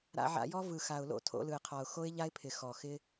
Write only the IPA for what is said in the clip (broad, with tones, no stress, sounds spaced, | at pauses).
ɾ a̰˧ ʕ a̰˧ j ɔ˦ v ɯ˨ x a˨ ʊ̯ l o̰˦˨ tʰ o̰˧ l ɯ˨ ɪ̯ qʰ ɔ˨ ʊ̯ x o˦ ɪ̯ ʎ a˦ ɪ̯ pʰ ɪ˨ x ɔ˨ x ɪ˦